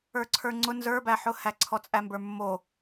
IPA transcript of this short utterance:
ə˞ ǀʰ ə˞ ŋ͡ǀ ʊ n z ə˞ b æ ħ ʊ h æ ǀʰ ɔ t͡sʼ æ m b ə˞ mː o

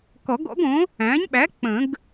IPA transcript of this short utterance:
k ɔ˨˩˦ ɡ ɔ̰˩˥ ɡ õ˩˥ | æ̃˩˥ ɲ ɓ æ˩˥ k͡p ə̃˨˩˦ ɡ

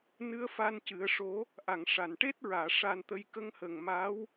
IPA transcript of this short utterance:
n ɨ˧˥ ə̯ f a˧ n c ɨ˨˩˦ ə̯ ʂ o˧˥ | ʔ a˨˩˨ ŋ ʂ a˨˩˨ n ʈ e˦˥ t̚ ɹ aː˨˩˨ ʂ a˧ n t̪ ə˧ j k ə˧˥ ŋ h ə˨˩ ŋ m a˧˥ w

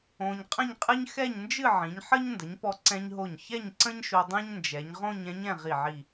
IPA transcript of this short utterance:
õ˧ ɲ qʼ ə̃˥˧ ɲ qʼ ɨ˥ ɲ x ɛ˥˧ ɲ n d͡ʒ ɨ˥˧ ʕ ĩ˩˧ ɲ ħ ə˥ ɲ n d ə˩˧ ɲ p ɔ˧ ǀ ɛ̃˧ ɲ ɦ o˧˩ ɲ ç ɛ˥˧ ɲ ǀ ə̃˥ ɲ ʃ o˧ dˤ ɛ̃˥ ɲ n d͡ʒ ɛ˩˧ ɲ ʁ õ˥˧ ɲ ɛ̃˥ ɲ ɛ̃˥˧ ʁ i˧˩ ʕ i˧˩

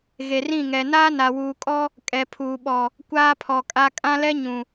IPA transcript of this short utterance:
ɣ e˨ r ĩ˦˨ ŋ ɛ˨ n aː˦ n a˨ w uː˨ kʼ ɔ˦ | kʼ ɛ˨ pʰ uː˨ ɓ ɔ˨ | kʷ aː˦ pʰ ɔ˨ kʼ a˦ kʼ ã˦ l ɛ˦ ɲ ũ˨

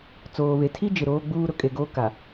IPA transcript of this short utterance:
t͡s oː˨ β e˨ tʰ i˦ d͡ʒ ɪ˨ ɾ oː˦ ɡ͡b uː˦ ɾ ʊ˨ kʼ e˨ ɡ oː˦ k a˨

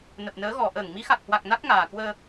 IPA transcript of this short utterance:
n ə˨˩ p̚ n əː˨˦ ɣ ɔ˨˩ ʔ əː˧˩ ŋ m i˨˦ x a˨˩ k̚ h w a˨˩ k̚ n a˦˥ k̚ ŋ aː˨˩ k w əː˧

